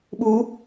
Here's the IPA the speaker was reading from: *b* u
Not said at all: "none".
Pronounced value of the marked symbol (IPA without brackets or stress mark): ɓ